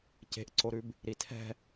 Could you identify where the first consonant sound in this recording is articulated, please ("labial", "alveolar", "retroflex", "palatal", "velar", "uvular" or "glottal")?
palatal